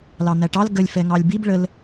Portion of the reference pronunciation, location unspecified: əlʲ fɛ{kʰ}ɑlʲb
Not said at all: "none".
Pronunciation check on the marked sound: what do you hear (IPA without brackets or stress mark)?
ŋ